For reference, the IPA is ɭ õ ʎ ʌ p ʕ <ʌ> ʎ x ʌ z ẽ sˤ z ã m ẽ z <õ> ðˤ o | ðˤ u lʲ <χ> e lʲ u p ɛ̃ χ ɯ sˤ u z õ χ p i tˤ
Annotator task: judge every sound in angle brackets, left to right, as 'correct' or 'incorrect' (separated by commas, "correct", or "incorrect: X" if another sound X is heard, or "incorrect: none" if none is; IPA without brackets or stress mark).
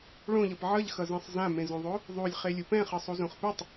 correct, correct, correct